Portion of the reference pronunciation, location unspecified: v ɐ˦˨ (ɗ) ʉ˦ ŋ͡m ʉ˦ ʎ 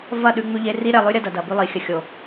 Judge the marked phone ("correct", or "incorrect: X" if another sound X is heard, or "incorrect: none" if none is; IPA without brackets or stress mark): correct